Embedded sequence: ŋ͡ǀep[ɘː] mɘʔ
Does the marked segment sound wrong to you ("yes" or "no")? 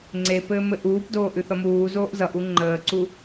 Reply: no